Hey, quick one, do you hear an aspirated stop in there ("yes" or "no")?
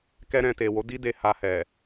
no